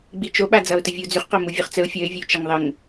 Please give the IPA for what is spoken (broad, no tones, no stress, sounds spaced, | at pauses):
ɡ͡b i t͡ʃ o ɓ a d͡z ʌː ʊ̯ t ə vʲ uː d͡z ʉ χ q o m u vʲ ʉ χ t͡s ə ʊ̯ fʲ ʌ ɪ̯ vʲ ə ʊ̯ t͡ʃ ʌ ŋ ðˤ ə ŋ